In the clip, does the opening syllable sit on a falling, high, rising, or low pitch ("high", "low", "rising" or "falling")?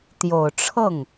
low